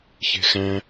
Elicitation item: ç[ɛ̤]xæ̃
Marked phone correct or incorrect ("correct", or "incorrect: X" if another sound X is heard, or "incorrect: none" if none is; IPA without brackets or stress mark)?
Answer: incorrect: e̤